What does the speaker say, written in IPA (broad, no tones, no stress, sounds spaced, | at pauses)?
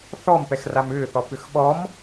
θ ɔ m p ɛ x r a m ʏː θ ɔ p ʏ x ɓ ɔ m